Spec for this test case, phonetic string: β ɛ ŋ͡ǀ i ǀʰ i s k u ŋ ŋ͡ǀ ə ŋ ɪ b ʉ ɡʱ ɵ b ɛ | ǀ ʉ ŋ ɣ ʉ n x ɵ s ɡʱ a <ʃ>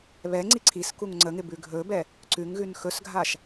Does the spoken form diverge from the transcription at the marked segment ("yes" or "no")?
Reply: no